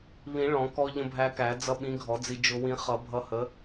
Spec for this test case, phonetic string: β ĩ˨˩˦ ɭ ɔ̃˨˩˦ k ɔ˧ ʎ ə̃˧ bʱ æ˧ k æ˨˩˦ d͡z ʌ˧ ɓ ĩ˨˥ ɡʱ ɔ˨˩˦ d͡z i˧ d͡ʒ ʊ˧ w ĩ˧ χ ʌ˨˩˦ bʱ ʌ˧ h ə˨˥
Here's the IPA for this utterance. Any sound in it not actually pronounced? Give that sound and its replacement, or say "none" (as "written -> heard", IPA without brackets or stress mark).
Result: none